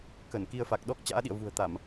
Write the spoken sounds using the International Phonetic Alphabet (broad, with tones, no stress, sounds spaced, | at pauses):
k ə˧˩ n k i˧ ə̯ f a˨˩ k̚ ɗ ɔ˦˥ k̚ t͡ɕ a̰ː˧˥ ɗ ḭ˧˨ ə̯ v ṳ˨˩ ə̯ t̪ a˧˩˨ m